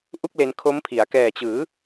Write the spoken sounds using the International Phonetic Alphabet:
ʔ u˥˩ k̚ l e˧ n kʰ o˦˥ m pʰ i˩˦ a̯ k ɛː˨˩ t͡ɕ ɯː˩˦

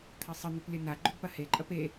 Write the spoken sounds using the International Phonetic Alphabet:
t̪ʰ ɐ sˤ ə n̪ ʏ p lʲ ə n a ɡ͡ǃ ʏ ɡ p ɐ h e ǃʼ ɐ p e

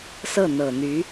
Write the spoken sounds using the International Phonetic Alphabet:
s ɤ˥˩ n̪ ɤ˨˩ n̪ y˧˥

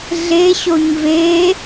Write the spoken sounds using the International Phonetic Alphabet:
ɮ e ɕ o ɲ v e

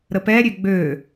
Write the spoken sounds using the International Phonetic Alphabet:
ɾ ə p ɛ ɾʲ ø ɡ͡b ø

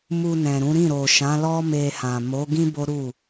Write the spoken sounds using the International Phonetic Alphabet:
m u˧ n ɛ̃˨ ɾ ũ˨˦ ɾ ĩ˦˨ ɾ o˨ ʃ ã˨˦ l ɔ˦ m e˧ h ã˨ m o˨˦ ɡ ĩ˦ b o˦ ɾ u˦˨

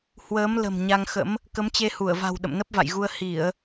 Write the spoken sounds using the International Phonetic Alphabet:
h w əː˨˦ m l ə̤˨˩ m ɲ a˧ ŋ x ə̰˧˥ m | k ə˨˦ m t͡ɕ e˧ h u˧˩ ə̯ v a̤˨˩ w ɗ ə̰˧˨ m n ə˦˥ p̚ v a̰˧˨ j ɣ u˧ ə̯ h i˧˩˨ ə̯

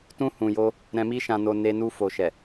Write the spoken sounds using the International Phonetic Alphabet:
t ũ˧ h ũ˨ j o˧ | ɾ ɛ̃˨ m i˧ ʃ ã˨ n o˨ n e˧ n u˧ f o˨ ʃ ɛ˨

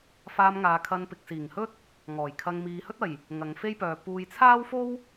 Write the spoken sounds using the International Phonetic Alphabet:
f aː˧ m ŋ aː˨ kʰ ɐ˧ n p ɪ˨ k̚ s iː˨˩ ŋ h ɵ˥ t̚ | ŋ ɔː˨˩ j kʰ ɐ˧ ŋ m iː˨˧ h ɵ˥ t̚ ɐ˨˩ j | ŋ ɐ˨˧ ŋ f e˥ j p œː˨ p uː˨ j t͡sʰ aː˥ w f o˥ w

